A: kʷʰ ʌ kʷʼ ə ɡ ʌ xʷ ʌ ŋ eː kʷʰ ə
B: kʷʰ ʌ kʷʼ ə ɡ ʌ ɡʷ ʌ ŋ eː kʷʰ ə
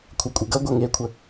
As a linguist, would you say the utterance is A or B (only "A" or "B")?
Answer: B